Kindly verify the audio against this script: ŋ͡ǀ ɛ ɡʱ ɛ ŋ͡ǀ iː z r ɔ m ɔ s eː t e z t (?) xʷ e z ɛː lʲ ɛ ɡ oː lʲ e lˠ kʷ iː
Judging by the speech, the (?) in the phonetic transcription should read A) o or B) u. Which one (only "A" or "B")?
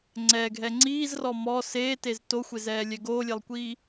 A